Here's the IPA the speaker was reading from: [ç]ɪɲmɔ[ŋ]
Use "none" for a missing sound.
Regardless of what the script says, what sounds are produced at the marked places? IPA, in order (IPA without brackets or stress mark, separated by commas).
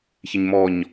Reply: ç, ɲ